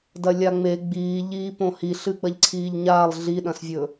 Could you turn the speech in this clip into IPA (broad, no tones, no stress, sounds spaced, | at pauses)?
d ɐ lʲ a ŋ͡m e ɡ͡b iː ʎ iː p õ h i ɬ ɨ ɡ͡b ɐ ʎ ǀʰ iː ʎ ɲ aː lˠ ɮ i ɗ ɐ̃ s vʲ ɵ